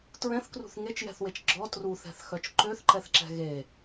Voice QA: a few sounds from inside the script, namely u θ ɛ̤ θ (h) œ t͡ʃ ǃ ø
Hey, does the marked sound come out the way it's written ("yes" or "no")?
no